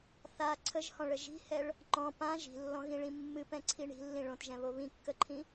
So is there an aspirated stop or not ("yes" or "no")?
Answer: yes